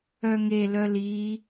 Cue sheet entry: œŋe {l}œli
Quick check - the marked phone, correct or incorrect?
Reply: correct